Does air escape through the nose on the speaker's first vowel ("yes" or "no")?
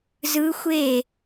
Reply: no